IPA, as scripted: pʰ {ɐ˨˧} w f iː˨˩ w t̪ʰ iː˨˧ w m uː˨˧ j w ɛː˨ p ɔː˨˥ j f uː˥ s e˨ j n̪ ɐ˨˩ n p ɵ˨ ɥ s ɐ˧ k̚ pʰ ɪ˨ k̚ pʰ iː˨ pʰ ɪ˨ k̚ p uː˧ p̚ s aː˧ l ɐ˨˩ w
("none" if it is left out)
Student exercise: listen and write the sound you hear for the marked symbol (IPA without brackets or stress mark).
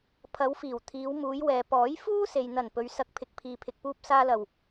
ɐ˨˧